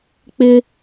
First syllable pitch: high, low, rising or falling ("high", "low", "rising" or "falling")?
high